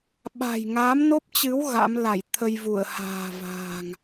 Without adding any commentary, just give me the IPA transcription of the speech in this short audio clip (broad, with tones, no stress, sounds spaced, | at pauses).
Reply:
ɓ a̤˨˩ j ŋ a˨˦ m n o˦˥ p̚ t͡ɕ ɨ˨˦ w ɣ a̰˧˥ m l a˧˩ j t̪ʰ ə˧ j v u˧˩ ə̯ h a̤ː˨˩ v a̤ː˨˩ ŋ